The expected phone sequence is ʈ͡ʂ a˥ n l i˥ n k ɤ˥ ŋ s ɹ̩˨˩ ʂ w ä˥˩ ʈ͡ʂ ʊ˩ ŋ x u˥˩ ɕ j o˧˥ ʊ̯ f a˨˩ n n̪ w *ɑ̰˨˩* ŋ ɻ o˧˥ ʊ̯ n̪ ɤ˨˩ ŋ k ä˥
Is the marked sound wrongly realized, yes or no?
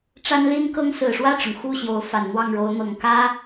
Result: yes